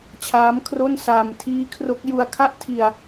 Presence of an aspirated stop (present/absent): present